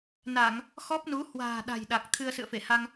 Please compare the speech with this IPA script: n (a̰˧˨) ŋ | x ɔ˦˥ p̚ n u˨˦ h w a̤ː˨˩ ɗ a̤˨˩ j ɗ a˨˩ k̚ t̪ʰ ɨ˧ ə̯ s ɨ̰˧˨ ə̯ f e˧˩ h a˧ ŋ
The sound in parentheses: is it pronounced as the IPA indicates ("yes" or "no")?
no